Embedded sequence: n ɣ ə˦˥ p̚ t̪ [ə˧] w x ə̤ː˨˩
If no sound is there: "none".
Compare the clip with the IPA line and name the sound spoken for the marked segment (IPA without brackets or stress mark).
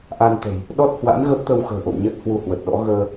ə˧